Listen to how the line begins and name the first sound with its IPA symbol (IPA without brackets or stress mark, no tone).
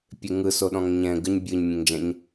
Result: pʲ